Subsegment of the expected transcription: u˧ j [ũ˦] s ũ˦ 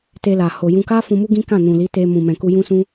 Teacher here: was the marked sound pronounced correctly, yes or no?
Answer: yes